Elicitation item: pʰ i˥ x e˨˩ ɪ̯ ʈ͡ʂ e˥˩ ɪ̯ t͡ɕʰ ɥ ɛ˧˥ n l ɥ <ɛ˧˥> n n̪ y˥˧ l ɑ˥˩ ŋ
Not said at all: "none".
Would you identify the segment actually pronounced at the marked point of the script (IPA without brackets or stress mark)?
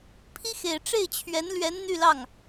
ɛ˧˥